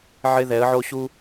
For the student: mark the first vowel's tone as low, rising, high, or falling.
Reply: high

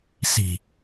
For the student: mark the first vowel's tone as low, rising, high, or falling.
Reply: low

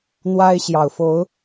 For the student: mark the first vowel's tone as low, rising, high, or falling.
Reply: high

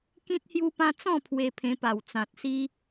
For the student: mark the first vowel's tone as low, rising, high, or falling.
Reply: high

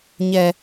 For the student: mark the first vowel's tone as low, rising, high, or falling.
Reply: low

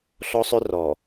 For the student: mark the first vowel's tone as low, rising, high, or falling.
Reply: high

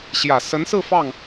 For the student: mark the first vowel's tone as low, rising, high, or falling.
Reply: low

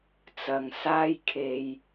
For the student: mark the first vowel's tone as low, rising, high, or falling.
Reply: low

